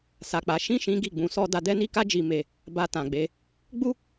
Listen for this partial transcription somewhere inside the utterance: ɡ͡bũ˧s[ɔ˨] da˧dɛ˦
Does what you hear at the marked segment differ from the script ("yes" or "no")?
yes